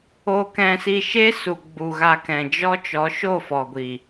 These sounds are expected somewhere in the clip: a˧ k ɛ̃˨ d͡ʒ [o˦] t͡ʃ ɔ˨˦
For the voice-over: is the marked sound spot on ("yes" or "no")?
no